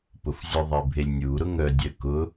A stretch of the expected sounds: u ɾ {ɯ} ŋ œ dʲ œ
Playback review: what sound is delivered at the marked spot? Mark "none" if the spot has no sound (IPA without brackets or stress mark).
ʊ